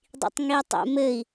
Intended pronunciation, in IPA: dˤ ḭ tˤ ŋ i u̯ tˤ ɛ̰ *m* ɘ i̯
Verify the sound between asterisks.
correct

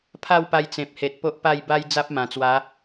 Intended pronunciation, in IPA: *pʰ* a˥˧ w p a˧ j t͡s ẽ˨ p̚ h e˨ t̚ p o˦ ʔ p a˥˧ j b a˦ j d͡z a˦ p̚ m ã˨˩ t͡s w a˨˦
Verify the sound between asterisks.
correct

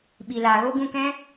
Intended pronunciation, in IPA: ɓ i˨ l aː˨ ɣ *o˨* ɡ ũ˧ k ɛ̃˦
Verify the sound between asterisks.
incorrect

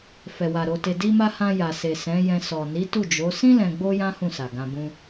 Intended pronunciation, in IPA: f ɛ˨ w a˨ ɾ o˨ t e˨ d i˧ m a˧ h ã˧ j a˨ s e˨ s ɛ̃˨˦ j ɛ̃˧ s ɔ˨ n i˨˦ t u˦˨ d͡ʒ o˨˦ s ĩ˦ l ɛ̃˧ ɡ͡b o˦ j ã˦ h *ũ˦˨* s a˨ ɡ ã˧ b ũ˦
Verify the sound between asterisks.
correct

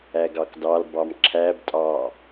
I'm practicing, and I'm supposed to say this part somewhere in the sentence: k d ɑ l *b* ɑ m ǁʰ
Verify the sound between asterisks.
correct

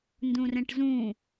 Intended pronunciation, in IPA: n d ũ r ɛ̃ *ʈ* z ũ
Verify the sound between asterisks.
correct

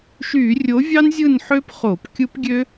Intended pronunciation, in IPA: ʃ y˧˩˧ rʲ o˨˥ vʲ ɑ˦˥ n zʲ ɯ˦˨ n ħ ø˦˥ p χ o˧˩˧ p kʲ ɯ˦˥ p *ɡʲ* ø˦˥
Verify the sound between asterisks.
correct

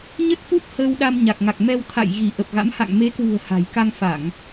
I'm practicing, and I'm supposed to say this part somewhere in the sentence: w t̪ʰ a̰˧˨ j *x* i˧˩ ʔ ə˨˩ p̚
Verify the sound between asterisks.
incorrect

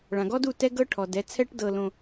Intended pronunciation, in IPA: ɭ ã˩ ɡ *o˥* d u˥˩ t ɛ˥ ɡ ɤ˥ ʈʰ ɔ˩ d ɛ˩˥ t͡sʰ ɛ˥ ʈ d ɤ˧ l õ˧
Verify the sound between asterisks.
incorrect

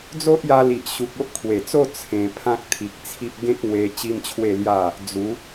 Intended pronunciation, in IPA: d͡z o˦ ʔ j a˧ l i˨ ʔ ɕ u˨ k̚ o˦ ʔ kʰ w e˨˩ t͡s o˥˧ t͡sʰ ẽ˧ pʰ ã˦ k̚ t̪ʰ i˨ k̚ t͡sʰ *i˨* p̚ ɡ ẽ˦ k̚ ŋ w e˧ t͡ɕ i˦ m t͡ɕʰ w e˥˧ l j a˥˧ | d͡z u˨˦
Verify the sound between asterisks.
incorrect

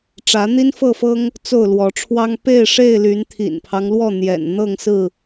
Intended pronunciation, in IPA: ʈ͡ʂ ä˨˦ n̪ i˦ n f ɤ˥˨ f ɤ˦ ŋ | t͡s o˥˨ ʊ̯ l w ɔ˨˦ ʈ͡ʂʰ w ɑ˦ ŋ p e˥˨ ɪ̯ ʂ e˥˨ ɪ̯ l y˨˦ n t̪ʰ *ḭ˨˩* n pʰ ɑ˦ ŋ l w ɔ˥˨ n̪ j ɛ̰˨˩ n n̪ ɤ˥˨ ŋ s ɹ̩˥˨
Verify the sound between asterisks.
correct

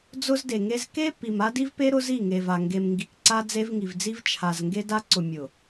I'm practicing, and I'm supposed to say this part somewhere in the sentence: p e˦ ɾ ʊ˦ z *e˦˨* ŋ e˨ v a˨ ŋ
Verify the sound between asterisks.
incorrect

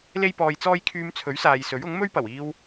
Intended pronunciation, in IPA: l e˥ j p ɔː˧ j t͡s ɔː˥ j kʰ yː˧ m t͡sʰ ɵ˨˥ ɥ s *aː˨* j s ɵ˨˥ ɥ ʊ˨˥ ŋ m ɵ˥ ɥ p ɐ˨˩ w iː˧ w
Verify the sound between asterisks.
correct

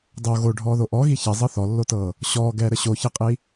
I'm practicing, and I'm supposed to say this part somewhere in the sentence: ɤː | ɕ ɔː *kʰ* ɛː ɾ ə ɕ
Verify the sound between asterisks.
incorrect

